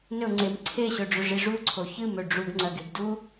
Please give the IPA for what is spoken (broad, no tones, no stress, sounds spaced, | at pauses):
n ɵ ŋ͡ǀ e m ǀʰ e ɕ ɵ ɖ͡ʐ ɵ ʐ i ʐ u ǀʰ o ç ɨ m ɵ ɖ͡ʐ u ɡ ŋ͡ǀ ɐ ɡ e ɡ d u